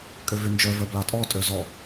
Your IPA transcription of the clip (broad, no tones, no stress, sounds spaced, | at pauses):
kʼ ø v y n d͡ʒ œ v œ b l ɑ tʼ ɔ tʼ ø z ɔ